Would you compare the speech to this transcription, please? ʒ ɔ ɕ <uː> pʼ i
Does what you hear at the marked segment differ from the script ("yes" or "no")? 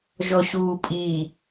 no